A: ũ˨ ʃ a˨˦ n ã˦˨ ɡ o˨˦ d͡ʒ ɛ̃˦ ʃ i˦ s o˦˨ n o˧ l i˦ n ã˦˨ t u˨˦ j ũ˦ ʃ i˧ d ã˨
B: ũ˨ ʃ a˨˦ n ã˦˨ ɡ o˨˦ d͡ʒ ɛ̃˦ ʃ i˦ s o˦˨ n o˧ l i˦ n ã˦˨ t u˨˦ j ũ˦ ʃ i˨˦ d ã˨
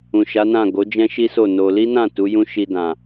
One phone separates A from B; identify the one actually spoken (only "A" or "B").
A